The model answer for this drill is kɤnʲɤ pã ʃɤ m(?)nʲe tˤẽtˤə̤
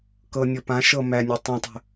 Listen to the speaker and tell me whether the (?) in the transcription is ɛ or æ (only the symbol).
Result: æ